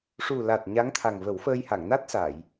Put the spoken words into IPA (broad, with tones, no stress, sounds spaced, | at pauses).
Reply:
ʂ u˨˩ l a˨˩ t̚ ɲ a˧˥ ŋ t̪ʰ a˨˩ ŋ v ə˨˩˦ w f əː˧ j h a˨˩˨ ŋ n a˦˥ t̚ s a˨˩˨ j